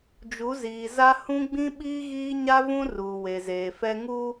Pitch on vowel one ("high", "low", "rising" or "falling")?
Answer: rising